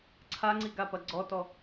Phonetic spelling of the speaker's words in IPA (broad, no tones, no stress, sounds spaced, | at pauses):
ǀʰ a ŋ͡ǀ i ɡ a p ɐ ɡ͡ǀ ɔ t ɔ